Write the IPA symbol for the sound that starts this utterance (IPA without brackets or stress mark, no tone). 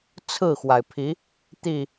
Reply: t͡sʰ